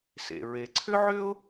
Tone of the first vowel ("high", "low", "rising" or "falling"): low